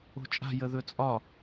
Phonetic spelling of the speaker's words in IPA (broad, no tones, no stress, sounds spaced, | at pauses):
o̤ t͡ʃʼ a̤ j ə ð ɵ t͡sʼ ɒ